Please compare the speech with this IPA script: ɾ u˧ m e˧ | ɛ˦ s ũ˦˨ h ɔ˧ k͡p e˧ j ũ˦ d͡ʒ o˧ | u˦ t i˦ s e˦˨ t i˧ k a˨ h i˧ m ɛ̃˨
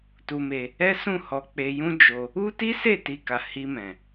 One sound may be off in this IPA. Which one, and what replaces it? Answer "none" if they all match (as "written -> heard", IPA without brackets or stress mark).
ɾ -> t